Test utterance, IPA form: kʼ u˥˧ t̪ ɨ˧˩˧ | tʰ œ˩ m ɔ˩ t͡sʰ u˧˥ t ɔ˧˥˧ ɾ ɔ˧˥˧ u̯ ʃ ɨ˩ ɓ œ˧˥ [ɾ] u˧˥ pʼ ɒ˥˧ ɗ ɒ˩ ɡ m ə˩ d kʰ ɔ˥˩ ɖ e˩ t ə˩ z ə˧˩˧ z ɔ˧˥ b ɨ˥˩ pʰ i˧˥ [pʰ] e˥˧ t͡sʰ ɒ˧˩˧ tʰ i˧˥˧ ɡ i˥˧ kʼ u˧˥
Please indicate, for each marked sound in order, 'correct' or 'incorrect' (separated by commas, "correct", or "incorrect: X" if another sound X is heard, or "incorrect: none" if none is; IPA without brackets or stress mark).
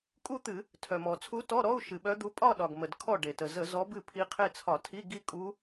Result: incorrect: d̪, incorrect: qʰ